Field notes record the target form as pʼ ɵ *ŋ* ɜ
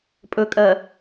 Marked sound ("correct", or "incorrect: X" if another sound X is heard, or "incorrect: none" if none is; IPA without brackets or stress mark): incorrect: kʼ